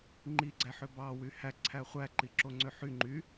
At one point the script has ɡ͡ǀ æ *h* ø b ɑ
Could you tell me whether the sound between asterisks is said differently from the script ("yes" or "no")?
yes